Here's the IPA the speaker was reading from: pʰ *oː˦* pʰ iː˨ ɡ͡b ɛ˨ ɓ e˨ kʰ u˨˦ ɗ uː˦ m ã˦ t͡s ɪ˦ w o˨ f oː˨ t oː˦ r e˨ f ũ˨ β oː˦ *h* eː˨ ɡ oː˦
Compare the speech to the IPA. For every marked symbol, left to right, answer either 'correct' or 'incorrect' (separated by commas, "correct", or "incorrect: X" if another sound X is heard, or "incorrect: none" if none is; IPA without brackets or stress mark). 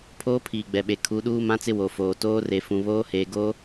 correct, correct